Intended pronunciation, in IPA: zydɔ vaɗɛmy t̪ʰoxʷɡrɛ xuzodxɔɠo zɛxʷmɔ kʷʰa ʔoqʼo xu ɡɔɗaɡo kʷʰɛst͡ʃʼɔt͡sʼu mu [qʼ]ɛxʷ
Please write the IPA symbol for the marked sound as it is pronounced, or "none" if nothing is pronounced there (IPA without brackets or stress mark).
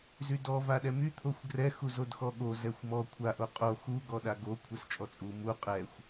qʼ